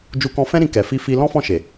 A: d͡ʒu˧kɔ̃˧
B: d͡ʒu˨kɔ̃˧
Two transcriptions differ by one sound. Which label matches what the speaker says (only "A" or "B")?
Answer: A